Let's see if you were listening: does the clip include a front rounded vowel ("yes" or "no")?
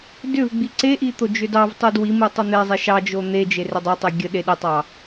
yes